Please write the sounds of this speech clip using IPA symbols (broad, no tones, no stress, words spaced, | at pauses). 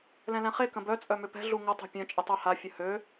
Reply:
lɛ̃lɛ̃χe kə̃bœ t͡sʼœmʏpɛ̤ ɮuŋə tˤɛ̤pʲœ̃ t͡ʃʼɪtˤœha fʲəhø